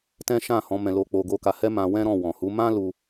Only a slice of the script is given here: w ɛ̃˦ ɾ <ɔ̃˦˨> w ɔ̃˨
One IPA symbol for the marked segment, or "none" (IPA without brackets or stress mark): ɔ̃˦˨